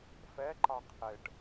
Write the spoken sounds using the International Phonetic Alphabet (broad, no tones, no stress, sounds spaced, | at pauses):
f ɛ ǃ ɑ qʰ ɪ ʈ